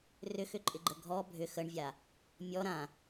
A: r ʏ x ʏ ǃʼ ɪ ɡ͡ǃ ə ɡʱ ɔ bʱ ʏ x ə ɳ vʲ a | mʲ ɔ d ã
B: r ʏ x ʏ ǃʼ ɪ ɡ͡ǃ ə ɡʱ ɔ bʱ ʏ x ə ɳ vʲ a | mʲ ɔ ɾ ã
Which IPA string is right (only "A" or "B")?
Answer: B